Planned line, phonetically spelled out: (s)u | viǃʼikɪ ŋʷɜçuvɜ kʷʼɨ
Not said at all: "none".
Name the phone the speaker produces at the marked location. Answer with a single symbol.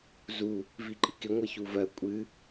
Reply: z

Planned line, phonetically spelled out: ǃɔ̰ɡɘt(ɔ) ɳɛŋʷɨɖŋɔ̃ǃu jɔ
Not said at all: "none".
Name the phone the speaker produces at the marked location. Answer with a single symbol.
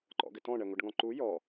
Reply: ɔ̃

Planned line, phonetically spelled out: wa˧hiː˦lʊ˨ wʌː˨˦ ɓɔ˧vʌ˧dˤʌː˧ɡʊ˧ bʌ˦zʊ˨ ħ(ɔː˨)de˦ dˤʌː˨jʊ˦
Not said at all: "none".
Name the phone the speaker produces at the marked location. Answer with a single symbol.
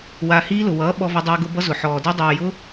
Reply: ɔː˨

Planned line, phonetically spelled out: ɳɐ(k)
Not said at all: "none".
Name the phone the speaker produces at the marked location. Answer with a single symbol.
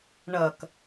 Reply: k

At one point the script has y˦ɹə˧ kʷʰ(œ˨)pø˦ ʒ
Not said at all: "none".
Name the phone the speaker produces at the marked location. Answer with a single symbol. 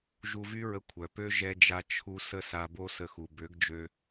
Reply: œ˨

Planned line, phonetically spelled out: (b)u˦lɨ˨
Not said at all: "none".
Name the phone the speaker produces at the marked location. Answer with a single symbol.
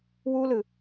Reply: w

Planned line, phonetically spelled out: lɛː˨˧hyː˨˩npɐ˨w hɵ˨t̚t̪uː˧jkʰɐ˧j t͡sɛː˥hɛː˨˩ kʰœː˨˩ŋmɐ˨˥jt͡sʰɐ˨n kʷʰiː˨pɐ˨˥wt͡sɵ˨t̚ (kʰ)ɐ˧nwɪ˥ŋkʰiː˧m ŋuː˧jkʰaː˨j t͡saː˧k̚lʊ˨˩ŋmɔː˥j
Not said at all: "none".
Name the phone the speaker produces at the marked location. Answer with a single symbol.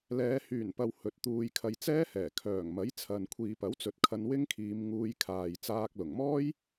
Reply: kʰ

